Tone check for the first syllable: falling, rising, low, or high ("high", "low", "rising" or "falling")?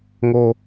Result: low